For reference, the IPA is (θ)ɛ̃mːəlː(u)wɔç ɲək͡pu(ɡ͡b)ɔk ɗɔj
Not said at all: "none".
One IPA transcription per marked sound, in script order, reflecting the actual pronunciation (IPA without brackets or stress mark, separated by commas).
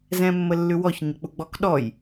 z, ʉ, ɡ͡b